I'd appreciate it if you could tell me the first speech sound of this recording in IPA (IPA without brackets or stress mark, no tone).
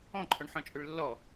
ɔ̃